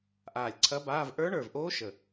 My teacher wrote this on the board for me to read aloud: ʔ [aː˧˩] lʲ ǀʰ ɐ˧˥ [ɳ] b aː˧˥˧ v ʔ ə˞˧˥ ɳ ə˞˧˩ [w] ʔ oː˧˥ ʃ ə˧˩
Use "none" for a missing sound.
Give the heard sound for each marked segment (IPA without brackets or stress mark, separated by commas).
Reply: aː˧˩, none, v